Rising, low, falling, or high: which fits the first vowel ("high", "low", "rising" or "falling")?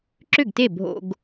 falling